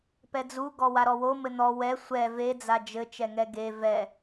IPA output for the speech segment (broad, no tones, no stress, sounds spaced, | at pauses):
p ɛ d͡z u ɡ ɔ w a ɾ ɔ w o m ɘ n̪ ɔ w ɛ sʷ ɛ v e d͡z a d͡ʒ ɘ t͡ʃ ɛ ŋ ɛ ɡ e v ɛ